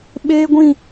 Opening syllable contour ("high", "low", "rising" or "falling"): high